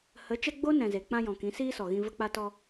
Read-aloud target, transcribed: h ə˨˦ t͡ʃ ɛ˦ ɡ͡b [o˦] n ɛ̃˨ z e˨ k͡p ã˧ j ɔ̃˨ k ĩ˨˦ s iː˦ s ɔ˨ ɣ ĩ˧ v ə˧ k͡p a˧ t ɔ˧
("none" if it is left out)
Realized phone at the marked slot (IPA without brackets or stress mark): o˦